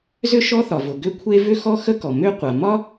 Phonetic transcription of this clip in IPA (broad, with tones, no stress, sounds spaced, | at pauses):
z ʏ˥ ʃ ɔ˥ θ ɒ˩ v ʊ˩ ɡ ʏ˥ kʷʰ e˥ v ʏ˥ x ɔ˥ x ə˥ k ɔ˩ m ʏ˥ qʷ a˩ m ɒ˥